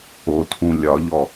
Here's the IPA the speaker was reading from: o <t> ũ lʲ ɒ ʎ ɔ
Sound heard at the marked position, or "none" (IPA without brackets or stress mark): tʰ